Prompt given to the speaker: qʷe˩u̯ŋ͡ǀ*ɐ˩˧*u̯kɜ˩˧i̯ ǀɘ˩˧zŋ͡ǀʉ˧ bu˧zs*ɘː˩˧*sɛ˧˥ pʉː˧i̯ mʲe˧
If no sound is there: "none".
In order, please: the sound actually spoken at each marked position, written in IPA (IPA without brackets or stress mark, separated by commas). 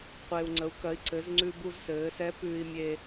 ə˩˧, ɘː˩˧